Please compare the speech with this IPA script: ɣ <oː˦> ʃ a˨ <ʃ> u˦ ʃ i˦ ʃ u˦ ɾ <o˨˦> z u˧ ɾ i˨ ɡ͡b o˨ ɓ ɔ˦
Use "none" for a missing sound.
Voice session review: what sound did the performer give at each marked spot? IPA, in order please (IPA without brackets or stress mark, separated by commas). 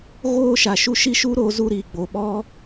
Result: oː˦, ʃ, o˨˦